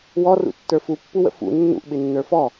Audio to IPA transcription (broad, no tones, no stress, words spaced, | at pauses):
wɔrṵtːə˞ fupːuwə̰ fṵ nːṵʔɓɪnːə˞ fɔ